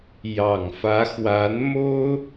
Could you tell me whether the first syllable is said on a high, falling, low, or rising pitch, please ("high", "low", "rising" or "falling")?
low